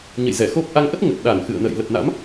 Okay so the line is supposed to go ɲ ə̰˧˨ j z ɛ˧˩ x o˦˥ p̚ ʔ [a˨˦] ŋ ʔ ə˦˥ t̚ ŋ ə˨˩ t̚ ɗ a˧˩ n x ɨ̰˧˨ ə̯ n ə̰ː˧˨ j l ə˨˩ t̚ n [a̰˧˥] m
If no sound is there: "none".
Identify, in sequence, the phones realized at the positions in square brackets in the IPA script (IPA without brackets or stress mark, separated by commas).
a˨˦, a̰˧˥